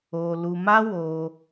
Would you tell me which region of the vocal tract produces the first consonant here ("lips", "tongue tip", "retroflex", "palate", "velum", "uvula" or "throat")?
tongue tip